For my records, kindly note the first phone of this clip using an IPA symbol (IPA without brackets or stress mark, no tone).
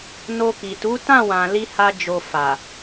n